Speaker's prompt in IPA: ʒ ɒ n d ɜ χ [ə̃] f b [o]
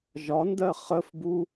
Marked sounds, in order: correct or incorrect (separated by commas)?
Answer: incorrect, incorrect